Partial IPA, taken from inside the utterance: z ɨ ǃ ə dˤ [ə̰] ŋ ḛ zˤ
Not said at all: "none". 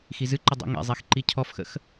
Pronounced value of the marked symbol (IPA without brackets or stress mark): ə̰